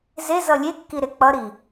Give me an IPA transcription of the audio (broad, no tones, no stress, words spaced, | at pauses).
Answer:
ze zʌlʲekːi ɾek͡pʌɾi